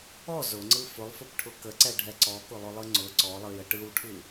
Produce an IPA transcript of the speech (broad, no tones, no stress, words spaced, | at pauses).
ɔ zʊŋ͡ǀɯ fʊlˠfʊpʈʰʊ kəǀɛɖʱɛ ǀɔkʊlˠʊlˠɯ ŋ͡ǀʊ ǀɔlˠɯjə ʈɯwʈʰɯ